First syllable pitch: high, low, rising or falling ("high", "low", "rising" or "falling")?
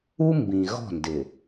high